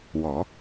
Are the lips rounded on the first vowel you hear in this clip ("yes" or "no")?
yes